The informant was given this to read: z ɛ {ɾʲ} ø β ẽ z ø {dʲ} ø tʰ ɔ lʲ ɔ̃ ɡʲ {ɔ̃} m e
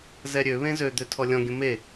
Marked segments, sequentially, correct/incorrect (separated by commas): correct, incorrect, incorrect